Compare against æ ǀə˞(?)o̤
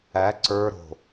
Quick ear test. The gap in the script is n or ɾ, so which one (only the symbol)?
ɾ